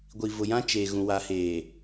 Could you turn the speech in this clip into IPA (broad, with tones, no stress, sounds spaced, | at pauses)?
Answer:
ɡʷ i˨ v ʊ˨ j ã˦ t͡ʃ eː˨ ɣ ũ˨ w a˨ h eː˨